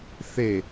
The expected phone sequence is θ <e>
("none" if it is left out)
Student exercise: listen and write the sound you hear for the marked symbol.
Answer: e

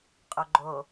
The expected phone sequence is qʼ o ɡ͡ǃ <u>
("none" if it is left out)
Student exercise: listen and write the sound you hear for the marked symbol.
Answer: o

